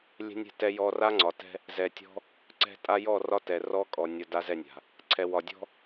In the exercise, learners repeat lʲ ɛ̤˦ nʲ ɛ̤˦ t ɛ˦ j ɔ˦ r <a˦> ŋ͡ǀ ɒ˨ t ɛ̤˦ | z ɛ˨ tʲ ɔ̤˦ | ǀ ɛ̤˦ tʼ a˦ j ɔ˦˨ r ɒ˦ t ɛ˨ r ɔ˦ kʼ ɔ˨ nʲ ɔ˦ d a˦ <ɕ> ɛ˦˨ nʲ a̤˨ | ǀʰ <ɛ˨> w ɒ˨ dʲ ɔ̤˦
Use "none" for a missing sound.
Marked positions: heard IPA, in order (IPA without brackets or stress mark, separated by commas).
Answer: a˦, z, ɛ˨